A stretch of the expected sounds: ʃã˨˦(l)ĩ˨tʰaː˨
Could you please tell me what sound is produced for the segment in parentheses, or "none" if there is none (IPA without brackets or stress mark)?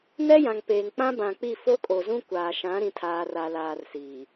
ɾ